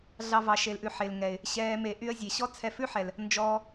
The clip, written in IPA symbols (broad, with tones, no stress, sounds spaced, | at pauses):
ɮ ɑ˦ v ɑ˧ ʃ e˧ l ʔ ʉ˧ ħ e˨ l ŋ ɛ˨ ɪ̯ | ɕ ɛː˧ m e˧ ʔ y˦ ə̯ zʲ e˨ ɕ ɔ˦ t͡sʰ ɛ˧ f ʉ˦ ħ ɛ˨ l | n d͡ʒ ɔː˧